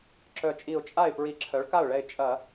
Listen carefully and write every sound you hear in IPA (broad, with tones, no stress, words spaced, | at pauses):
ǁœ˧˩t͡ʃʼi˧˩ʊ̯ t͡ʃʼa˥˩ɪ̯ pɹi˧˩˧ǁʰœ˩˥ɭka˥˩ʊ̯ɭɛ˧˩ɪ̯ t͡ʃʼɐ˧˩˧